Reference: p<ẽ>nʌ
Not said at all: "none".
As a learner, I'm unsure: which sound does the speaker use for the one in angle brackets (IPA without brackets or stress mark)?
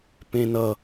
ẽ